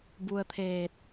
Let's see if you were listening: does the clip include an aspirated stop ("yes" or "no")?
yes